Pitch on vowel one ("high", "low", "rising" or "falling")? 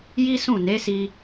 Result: high